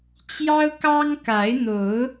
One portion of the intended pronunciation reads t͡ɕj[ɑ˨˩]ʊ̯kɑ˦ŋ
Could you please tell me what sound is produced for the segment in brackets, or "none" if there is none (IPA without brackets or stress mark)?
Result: ɑ˦